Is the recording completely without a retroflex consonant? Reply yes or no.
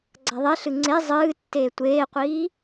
yes